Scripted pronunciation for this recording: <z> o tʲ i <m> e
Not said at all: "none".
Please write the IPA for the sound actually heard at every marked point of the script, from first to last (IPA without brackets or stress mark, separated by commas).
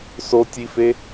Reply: s, f